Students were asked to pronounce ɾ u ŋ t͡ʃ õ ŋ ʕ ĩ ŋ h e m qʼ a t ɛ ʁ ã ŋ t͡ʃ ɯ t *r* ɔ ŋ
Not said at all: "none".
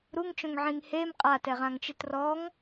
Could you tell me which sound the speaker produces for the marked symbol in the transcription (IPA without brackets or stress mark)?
r